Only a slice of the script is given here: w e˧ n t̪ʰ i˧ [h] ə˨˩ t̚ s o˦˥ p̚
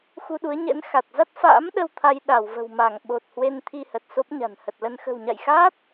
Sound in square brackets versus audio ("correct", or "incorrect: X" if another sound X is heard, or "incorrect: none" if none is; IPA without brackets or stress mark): correct